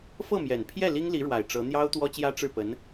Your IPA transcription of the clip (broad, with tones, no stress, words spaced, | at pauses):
fɤ˥˩mjɛ˨˩npʰjɛ˥˩ li˥ŋli˧˥ɻwa˨˩ɪ̯ ʈ͡ʂɤ˧˥ n̪jɑ˥ʊ̯t̪wɔ˥t͡ɕjä˥ ʈ͡ʂɻ̩˥˩pə˧˥n